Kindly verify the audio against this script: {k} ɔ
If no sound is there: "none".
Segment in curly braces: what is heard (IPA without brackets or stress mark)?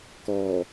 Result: k